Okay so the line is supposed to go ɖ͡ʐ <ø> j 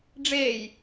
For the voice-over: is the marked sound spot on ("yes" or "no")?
no